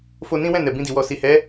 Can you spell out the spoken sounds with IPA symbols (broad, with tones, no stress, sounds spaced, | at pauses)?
f o˧ n ĩ˦ w ɛ̃˦˨ n ɛ˨ b ĩ˧ d i˨ w ɔ˨ s i˨ h ɛ˨˦